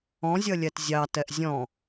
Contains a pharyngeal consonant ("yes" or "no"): no